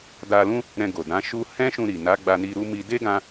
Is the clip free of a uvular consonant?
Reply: yes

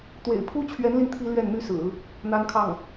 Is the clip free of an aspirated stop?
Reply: no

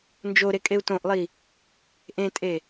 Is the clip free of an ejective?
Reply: no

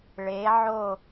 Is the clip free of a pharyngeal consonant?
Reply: no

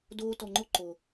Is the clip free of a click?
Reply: no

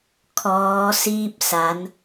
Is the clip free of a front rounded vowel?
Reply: yes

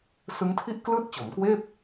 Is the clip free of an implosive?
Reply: yes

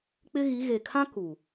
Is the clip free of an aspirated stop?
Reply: no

